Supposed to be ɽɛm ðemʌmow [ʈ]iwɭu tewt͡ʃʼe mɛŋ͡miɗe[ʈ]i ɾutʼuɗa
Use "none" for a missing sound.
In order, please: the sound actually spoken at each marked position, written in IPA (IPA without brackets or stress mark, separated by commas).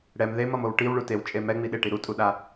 ʈ, ʈ